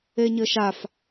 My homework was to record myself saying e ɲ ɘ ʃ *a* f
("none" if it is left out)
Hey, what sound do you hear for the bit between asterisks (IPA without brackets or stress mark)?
a